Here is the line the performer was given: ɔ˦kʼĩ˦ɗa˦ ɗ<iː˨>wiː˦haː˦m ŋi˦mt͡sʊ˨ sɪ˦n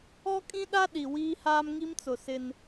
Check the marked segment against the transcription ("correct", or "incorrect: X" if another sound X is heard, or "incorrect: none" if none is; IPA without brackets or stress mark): incorrect: i˨